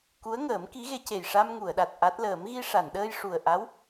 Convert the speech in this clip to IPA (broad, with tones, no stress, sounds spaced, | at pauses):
k u˧˥ ə̯ ŋ əː˨˩˦ m k i˧˥ ɣ e˧˥ c e˨˩ j ʂ a˧ m ŋ u˨˩˨ ə̯ ɗ a˨˩ t̚ ʔ a˦˥ t̚ l əː˨˩˦ m ɣ i˧ ʂ a˨˩˨ n ɗ əː˧ j ʂ u˨˩ ə̯ ʔ a˧˥ w